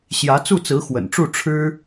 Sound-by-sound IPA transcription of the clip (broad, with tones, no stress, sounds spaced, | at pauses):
ɕ j ä˧˥ t͡s u˥˩ t͡s ɹ̩˧˥ x w ə̰˨˩ n ʈ͡ʂ u˥˩ ʈ͡ʂʰ ɻ̩˥